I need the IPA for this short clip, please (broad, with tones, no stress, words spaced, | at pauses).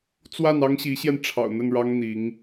t͡swa˥˩nɑ˥ŋɕi˧˥ɕjɛ˧n ʈ͡ʂʰɑ̰˨˩ʊ̯n̪ə˥˩nɻɑ˥ŋ n̪i˧˥ŋ